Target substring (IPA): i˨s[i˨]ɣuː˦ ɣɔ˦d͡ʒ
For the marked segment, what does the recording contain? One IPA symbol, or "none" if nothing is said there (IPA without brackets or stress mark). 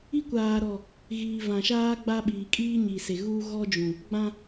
e˨